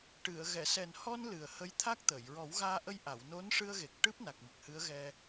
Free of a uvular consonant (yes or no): yes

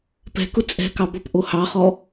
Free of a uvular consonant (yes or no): no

